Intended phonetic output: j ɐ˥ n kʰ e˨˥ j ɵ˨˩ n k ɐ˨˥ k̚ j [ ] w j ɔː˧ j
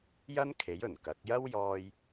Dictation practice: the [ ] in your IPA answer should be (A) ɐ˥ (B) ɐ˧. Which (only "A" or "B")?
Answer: A